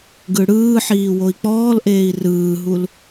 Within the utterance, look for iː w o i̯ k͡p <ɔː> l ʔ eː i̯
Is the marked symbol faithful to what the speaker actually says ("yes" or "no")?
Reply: yes